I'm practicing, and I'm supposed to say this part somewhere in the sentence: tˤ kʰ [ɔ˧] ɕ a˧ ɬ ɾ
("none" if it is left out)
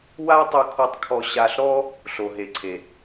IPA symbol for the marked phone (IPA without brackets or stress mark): ɔ˧